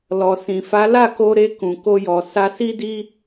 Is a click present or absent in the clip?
absent